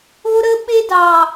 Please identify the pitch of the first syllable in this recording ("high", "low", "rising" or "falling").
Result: high